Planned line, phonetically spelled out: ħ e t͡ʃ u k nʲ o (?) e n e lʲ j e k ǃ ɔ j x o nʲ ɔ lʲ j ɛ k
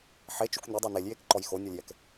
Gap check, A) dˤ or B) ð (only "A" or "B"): A